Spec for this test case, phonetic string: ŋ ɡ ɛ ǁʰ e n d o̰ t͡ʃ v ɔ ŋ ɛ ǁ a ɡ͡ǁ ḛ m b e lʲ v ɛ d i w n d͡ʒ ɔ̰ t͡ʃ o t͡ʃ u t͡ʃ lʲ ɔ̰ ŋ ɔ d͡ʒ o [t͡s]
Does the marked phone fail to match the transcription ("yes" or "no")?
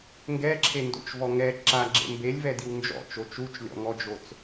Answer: no